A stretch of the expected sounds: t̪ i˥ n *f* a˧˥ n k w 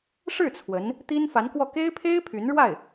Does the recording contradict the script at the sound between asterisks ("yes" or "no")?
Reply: no